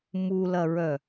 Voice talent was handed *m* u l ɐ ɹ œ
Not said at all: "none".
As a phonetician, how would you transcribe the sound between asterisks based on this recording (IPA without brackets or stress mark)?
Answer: m